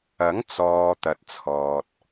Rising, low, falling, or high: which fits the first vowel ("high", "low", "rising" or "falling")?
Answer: rising